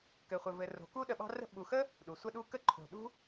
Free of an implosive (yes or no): no